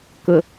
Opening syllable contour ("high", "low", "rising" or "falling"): low